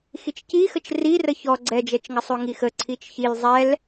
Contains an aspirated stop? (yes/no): yes